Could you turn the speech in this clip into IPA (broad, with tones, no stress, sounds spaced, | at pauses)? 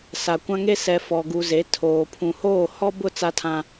s a˨ kʷ ã˦ ŋ e˦ s ɛ˨ f ɔ˨ ɡ u˨ z e˨˦ tʰ oː˨ pʰ ũ˨ h oː˦˨ h ɔ˦ b ʊ˦˨ t͡s a˦ tʰ ã˦